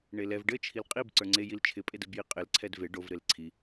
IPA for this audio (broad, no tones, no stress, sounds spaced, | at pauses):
ɳ e l ɛ v ɖ ɘ t͡ʃʰ i l qʼ i b ǀ ə˞ ŋ͡ǀ e j i l t͡ʃʰ ɪ pʼ e d ɘ b j i qʼ ɪ l ǀʰ ɛ d v e ɖ o v ɾ e l ǀʰ i